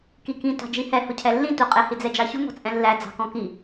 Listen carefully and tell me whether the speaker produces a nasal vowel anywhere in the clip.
yes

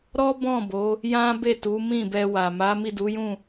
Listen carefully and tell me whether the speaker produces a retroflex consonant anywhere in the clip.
no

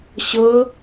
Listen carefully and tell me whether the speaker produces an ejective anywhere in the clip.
no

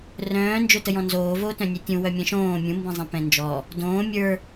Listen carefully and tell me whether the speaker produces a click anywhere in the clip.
no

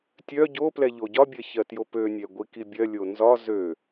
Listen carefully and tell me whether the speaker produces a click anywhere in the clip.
no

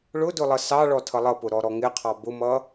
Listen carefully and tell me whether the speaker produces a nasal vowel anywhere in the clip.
no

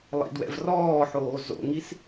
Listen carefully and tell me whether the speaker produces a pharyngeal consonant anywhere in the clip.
yes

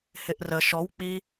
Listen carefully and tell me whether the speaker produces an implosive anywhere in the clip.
no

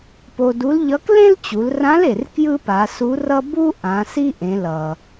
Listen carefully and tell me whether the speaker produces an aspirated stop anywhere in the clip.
no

